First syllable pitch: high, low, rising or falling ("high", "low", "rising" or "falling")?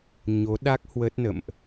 rising